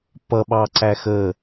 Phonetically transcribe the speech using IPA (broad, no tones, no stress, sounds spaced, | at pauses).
p ʌ ɓ ɑ ǀ æ x ə